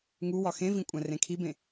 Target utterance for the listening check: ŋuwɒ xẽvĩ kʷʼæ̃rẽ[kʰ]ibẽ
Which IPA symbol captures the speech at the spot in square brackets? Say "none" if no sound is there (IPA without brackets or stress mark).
kʰ